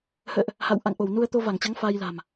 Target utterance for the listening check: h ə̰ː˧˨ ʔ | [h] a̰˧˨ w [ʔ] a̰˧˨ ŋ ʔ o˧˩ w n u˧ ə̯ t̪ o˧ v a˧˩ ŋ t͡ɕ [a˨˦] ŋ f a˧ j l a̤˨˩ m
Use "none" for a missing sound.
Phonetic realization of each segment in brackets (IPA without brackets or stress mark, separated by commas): h, ʔ, a˨˦